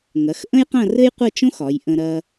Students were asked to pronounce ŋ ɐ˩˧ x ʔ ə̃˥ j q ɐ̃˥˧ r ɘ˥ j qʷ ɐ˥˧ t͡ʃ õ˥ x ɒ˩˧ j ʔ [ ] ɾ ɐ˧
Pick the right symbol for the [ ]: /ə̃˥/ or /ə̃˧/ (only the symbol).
ə̃˧